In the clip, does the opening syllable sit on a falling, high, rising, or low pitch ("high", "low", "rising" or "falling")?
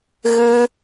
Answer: high